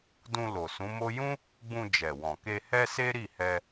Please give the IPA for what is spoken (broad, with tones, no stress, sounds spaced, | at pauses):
d ũ˧ l o˨ s ũ˨˦ m o˦ j ũ˦ | ɡ͡b ũ˧ d͡ʒ ɛ˨ w ɔ̃˨ k e˧ h ɛ˦ s e˦ ɾ i˦˨ h ɛ˧